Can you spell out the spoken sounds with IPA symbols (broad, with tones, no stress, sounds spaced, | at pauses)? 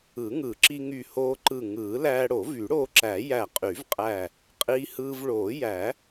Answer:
ɯ˨˩˦ ŋ ɯ˨˩˦ ǁ i˧ ŋ y˧˩ h oː˧ ǃ ɯ˧˩ ŋ ɯː˨˩˦ l æː˧ ɽ o˨˩˦ v y˨˩˦ ɽ oː˧ ǁ æ˨˩˦ j æ˧˩ qʼ y˨˩˦ v qʼ æ˧˩ | qʼ iː˧ h ɯː˧ v ɭ oː˨˩˦ j æ˨˩˦